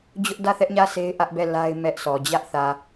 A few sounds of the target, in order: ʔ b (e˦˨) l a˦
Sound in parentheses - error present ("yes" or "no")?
yes